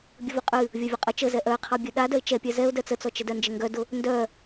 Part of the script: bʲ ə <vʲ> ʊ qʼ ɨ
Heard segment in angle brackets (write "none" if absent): v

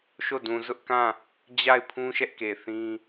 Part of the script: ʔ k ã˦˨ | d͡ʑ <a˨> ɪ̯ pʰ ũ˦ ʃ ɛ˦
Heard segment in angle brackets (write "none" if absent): a˦˨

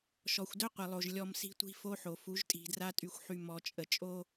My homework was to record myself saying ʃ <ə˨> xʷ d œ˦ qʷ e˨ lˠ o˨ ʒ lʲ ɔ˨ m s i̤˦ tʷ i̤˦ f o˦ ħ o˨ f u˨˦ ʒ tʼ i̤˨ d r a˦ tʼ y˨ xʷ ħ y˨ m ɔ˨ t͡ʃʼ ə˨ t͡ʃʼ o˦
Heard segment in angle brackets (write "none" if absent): ɔ˨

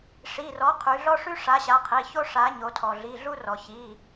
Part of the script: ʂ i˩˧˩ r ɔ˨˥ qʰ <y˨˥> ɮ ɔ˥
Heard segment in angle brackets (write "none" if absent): y˩˧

